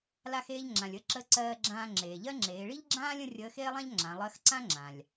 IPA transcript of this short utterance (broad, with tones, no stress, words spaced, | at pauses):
la˧xeː˧ʎ ŋ͡ǁã˩lʲ ə˧˥ǁə˧˥ǀɜː˧ɡ͡ǁãː˧ ŋ͡ǁeː˩ʎɜ˥ ŋ͡ǁeː˩˧ɭi˥ʎɡ͡ǁãː˥lʲ ə̃˥ rʲəː˧˥xeː˥lˠã˥ʎ ŋ͡ǁã˩˧ lˠɜ˧˥xǀã˥ŋ͡ǁã˩lʲ